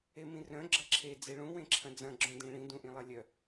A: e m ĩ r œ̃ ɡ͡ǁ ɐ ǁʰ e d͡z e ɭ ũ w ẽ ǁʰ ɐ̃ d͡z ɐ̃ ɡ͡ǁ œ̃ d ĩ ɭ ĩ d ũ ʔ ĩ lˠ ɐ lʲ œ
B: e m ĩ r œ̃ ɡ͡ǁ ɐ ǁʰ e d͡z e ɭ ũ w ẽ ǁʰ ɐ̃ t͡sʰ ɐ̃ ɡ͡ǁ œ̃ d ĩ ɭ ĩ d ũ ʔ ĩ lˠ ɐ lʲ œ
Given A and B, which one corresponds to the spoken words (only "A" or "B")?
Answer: A